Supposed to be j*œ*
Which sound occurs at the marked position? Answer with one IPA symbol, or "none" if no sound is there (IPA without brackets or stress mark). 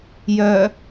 œ